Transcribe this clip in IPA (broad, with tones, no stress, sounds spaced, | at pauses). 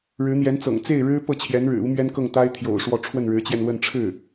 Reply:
ɻ ɻ̩˧˥ n̪ j ɛ˧˥ n t͡s ɤ̰˨˩ ŋ t͡s e˥˩ ɪ̯ ɻ ɻ̩˥ p ɤ˥˩ t͡ɕʰ j ɛ˧˥ n ɻ ɻ̩˨˩ u˥ m ɥ ɛ˥ n k ɤ˥˩ ŋ t̪ a˥ ɪ̯ t̪ʰ j o̰˨˩ ʊ̯ ʂ w ɔ˥˧ ʈ͡ʂʰ w ə˥˩ n ɻ ɻ̩˧˥ t͡ɕ j ɛ˧ n l w ə˥˧ n ʈ͡ʂʰ ɻ̩˥˩